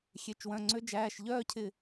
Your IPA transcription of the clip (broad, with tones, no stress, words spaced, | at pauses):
xʲe˩˧˩t͡ʃwœ̃˩˧˩ŋ͡ǀø˧˥ d͡ʒæː˩˧˩ʃʎœː˥˧cʰɪ˧˩